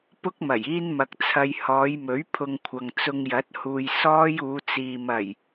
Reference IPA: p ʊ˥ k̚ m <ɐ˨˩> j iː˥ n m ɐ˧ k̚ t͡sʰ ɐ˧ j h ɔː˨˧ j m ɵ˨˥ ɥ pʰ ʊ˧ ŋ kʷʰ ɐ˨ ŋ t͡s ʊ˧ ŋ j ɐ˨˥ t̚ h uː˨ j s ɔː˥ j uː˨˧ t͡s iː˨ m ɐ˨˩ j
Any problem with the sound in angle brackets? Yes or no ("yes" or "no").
no